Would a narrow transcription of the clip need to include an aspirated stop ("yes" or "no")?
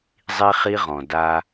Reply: no